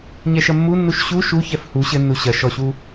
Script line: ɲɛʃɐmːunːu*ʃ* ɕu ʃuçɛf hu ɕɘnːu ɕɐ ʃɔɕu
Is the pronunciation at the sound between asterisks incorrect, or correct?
correct